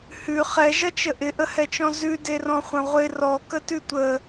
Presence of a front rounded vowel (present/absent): absent